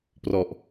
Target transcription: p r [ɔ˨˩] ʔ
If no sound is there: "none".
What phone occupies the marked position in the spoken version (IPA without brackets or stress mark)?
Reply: ɔ˨˩